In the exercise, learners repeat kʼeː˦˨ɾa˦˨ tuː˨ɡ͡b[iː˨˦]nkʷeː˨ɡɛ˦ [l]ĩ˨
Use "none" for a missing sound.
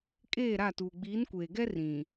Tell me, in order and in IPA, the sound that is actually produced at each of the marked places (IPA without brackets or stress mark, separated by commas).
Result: iː˨˦, r